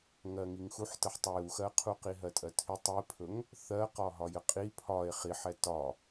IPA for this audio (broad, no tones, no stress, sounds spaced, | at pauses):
ŋ ɜ ŋ i ŋ x u ħ t ə ħ tˤ ɵ j u x ɜ qʰ u q i ɦ ɜ tʼ ɜ tʰ i tˤ i pʰ ɵ ŋ | θ ɜ q ɒ ɦ ɒ j ə qʼ i pʰ ɒ e̯ χ i ħ ɛ t ɒ